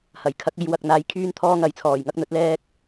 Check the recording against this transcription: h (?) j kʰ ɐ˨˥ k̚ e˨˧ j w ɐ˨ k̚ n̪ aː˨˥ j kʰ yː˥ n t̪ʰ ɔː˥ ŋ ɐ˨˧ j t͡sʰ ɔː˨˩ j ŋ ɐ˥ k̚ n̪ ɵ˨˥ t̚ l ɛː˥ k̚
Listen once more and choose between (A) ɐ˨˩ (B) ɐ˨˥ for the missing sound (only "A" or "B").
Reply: A